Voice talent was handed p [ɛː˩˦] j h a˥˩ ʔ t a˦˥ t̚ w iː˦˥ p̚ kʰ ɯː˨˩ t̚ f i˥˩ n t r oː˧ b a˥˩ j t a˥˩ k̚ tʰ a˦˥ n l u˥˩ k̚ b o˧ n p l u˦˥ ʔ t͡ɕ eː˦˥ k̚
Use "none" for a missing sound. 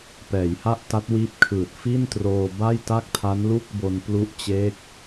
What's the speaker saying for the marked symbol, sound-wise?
ɛː˩˦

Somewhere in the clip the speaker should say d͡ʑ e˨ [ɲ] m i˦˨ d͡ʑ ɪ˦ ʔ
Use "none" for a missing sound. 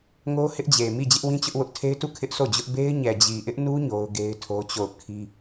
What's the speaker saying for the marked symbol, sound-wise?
none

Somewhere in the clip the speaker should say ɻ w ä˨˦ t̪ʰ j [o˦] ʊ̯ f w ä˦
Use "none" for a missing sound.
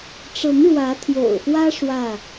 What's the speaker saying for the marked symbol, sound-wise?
o̰˨˩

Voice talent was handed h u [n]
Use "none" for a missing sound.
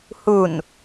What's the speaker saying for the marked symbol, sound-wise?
n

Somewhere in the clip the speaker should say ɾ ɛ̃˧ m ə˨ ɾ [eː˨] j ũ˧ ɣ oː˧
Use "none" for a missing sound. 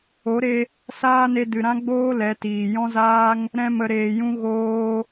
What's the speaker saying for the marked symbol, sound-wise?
eː˨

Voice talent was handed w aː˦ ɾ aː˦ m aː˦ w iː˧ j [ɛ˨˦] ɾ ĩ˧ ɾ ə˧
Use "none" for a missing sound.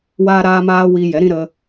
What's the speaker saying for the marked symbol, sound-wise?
ɛ˨˦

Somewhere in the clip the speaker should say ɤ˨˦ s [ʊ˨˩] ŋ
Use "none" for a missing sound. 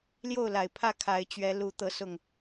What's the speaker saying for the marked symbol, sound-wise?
ʊ˨˩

